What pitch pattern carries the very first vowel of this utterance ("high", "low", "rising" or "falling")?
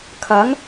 rising